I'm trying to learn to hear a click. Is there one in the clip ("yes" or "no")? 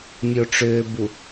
no